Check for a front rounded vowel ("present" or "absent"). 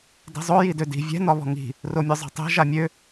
present